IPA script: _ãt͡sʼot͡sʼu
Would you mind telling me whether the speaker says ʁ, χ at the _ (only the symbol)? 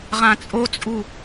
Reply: ʁ